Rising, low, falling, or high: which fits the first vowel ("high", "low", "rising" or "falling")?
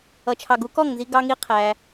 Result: low